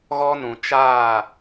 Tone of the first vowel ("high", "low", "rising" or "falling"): high